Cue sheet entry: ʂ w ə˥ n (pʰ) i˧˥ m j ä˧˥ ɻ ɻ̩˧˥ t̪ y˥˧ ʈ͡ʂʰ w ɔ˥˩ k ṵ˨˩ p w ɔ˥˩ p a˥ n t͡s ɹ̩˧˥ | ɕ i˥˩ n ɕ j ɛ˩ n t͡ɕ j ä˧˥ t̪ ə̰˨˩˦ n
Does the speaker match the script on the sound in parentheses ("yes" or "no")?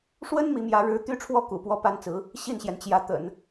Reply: no